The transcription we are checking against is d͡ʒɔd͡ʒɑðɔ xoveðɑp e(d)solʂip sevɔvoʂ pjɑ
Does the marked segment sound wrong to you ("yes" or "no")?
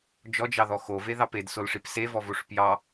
no